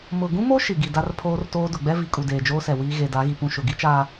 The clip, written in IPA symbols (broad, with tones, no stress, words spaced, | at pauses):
mʊ˨ɡũ˦mo˦ ʃi˨ ɡi˨da˦r pʰoː˦rtoː˦ dʊ˨ɡ͡bɛ˦vi˨kʼu˨ deː˨d͡ʒoː˦sɛ˨ wiː˦ ɣe˨da˨˦ɣi˨ pũ˦ʃʊ˨ ɡi˦t͡ʃaː˨